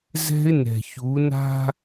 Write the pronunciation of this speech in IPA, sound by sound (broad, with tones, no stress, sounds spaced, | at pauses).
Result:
z ɛ̤˦ ɪ̯ n ɛ̤˨ ç u˨˦ n a̤˦